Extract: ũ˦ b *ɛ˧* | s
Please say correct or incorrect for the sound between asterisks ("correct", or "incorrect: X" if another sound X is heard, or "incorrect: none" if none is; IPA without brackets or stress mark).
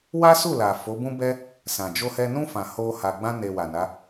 incorrect: ɛ˦